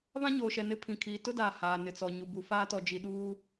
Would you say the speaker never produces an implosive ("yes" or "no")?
no